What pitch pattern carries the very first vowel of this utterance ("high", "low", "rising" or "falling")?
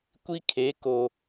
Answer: high